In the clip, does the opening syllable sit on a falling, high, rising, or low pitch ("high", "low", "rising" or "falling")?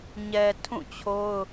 low